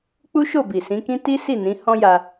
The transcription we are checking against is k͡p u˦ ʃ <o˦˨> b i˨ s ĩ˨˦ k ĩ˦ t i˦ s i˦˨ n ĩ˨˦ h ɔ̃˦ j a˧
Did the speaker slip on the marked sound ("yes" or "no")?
no